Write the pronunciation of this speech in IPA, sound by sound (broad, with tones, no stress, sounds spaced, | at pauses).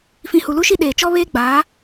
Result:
f ĩ˨ h u˨ l u˦ ʃ i˦ ɗ eː˨ t͡ʃ ɔ˦ β eː˦ ɡ͡b aː˨˦